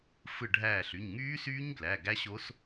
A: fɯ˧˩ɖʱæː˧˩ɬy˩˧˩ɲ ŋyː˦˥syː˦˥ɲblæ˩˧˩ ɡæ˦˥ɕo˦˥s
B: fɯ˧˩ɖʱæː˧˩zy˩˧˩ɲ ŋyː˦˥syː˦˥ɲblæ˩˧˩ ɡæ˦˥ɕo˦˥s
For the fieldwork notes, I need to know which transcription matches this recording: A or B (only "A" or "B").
A